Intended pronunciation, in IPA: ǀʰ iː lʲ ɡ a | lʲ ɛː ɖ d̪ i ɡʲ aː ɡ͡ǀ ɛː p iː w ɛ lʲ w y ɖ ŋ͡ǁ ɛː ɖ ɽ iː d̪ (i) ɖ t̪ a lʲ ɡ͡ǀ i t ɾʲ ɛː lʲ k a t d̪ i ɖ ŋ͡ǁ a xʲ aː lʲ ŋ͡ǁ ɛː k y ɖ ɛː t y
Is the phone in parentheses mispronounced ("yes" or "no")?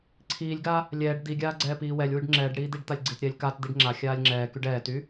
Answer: no